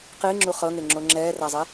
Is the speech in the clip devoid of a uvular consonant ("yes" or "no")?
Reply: no